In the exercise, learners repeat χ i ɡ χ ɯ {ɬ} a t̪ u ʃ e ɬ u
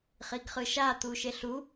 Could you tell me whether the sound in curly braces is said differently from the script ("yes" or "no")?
yes